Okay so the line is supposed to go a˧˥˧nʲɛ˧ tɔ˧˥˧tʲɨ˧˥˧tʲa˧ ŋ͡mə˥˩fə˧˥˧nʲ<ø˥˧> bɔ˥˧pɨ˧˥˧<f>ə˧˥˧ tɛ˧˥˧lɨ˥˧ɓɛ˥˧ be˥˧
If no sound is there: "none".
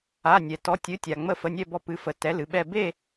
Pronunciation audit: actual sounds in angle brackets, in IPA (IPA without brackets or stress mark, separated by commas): ɛ˥˧, f